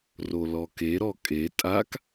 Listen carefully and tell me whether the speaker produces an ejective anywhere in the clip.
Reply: yes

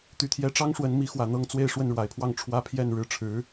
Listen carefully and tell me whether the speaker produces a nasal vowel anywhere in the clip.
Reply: no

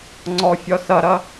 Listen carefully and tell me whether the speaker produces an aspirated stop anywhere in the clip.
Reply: no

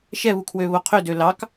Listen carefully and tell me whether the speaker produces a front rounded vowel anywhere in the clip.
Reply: yes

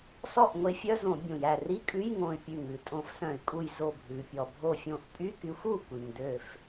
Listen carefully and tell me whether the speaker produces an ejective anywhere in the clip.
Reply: yes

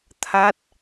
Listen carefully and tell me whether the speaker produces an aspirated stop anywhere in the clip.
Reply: yes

